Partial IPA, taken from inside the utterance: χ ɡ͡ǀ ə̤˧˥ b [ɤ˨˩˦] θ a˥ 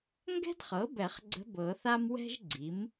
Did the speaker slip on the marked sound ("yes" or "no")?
no